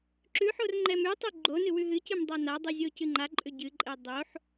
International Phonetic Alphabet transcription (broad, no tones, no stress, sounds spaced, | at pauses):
ǁ ʉ ħ o r ŋ͡ǃ ɛ m ʉ tˤ ʉ ɡ͡ǃ o n ɨ w ʉ ɦ ɨ c ɨ m dˤ a n a dˤ ɨ zʲ o c ɨ ŋ͡ǃ a ǃʼ ʏ ɟ ɨ ǃʼ ɛ dˤ o ħ